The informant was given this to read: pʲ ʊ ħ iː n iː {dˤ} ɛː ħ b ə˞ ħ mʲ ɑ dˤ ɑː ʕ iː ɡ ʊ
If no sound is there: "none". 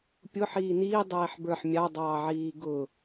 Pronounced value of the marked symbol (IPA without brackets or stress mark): dˤ